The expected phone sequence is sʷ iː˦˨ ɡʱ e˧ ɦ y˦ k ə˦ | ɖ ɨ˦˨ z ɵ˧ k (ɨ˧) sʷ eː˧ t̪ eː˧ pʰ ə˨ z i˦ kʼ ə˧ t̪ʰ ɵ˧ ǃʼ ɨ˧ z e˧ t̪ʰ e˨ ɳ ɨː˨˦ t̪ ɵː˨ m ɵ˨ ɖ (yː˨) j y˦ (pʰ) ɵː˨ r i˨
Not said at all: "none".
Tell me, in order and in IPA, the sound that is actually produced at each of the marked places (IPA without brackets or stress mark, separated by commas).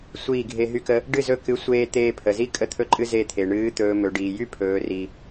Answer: ɨ˨˦, iː˨, pʰ